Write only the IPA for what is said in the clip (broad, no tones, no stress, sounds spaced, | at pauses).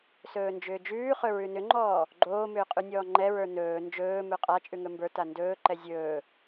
s ɵː n d͡ʒ ʏː d͡ʒ ʉː χ ɵ ɹ ʉ n ʏ ŋ͡ǃ ɔː | ɡ͡ǃ oː m ʏː qʼ ʉ nʲ ɔː ŋ͡ǃ ɛ ɹ ə˞ n ɵː n d͡ʒ ɵː m ɵ qʼ a t͡ʃʼ ʉ ŋ ɵ m b ə˞ t a n d ɵː ǃ ɛ zʲ ɵː